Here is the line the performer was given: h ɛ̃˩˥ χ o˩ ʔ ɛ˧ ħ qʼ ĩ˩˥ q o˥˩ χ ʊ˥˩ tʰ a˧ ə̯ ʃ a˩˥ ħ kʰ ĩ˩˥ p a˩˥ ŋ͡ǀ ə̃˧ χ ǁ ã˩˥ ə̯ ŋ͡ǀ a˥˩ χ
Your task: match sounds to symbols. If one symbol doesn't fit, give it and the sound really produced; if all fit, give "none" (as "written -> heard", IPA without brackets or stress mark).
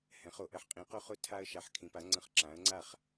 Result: none